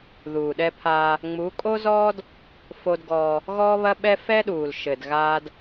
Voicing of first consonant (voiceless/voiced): voiced